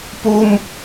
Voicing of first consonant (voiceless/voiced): voiceless